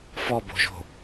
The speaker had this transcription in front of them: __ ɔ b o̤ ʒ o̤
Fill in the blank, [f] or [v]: f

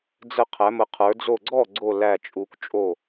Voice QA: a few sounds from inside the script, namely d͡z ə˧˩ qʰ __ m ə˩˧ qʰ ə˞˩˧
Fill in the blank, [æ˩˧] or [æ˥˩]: æ˩˧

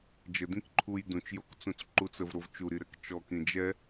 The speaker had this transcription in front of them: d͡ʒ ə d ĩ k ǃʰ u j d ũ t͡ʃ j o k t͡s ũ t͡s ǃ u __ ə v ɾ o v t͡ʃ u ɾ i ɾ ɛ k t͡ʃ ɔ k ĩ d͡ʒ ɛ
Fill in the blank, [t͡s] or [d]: t͡s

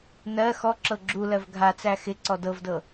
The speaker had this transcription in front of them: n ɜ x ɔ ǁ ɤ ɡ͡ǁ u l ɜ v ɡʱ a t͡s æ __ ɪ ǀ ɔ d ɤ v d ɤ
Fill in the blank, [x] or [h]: x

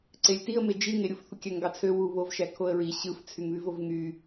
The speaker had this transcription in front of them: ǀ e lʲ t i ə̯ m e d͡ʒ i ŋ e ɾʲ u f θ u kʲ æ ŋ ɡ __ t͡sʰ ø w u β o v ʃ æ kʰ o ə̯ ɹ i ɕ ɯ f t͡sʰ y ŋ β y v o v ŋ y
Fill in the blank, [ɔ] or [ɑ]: ɑ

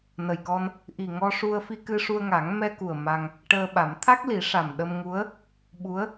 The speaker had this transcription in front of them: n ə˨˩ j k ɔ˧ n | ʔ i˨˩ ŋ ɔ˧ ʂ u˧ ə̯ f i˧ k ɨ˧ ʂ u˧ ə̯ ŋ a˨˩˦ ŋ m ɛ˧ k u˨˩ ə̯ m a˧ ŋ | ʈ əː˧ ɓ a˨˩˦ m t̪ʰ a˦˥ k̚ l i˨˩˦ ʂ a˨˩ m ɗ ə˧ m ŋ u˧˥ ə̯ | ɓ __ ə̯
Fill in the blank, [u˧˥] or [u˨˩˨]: u˧˥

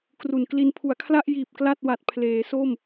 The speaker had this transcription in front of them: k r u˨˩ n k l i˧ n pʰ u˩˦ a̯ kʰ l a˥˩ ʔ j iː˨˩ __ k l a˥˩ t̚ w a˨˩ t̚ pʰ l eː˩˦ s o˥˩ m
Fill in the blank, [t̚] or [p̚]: p̚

